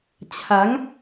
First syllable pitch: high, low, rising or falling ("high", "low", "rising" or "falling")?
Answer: rising